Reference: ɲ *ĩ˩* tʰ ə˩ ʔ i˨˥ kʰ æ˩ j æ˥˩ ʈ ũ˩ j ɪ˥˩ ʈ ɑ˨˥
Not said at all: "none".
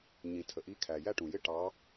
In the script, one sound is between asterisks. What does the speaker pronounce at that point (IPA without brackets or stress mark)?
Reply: ĩ˩